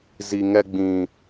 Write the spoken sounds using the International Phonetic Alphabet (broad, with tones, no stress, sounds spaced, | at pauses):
z i˨ ŋ ɛ˧ ɡ͡b ĩ˨